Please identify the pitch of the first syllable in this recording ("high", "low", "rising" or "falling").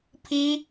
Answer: high